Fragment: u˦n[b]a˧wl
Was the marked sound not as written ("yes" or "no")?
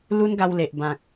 yes